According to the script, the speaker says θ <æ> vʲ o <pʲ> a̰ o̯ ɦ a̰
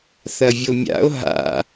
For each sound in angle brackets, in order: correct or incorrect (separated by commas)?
incorrect, incorrect